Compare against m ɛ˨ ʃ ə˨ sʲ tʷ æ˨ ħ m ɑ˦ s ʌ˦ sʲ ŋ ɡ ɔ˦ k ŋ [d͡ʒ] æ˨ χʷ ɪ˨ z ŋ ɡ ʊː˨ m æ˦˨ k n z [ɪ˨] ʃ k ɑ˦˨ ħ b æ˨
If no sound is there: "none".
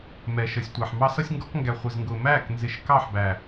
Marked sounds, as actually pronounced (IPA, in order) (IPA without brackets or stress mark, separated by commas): ɡ, ɪ˨